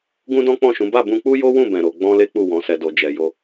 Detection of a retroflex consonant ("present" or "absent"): absent